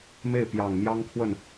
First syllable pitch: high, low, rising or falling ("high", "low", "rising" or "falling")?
falling